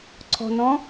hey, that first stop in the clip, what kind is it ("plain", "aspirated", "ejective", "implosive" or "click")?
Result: click